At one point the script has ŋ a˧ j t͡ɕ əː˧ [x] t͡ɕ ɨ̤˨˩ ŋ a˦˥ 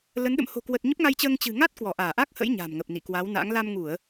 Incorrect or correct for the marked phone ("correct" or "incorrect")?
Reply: incorrect